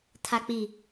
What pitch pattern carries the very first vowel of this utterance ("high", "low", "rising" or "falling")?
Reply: low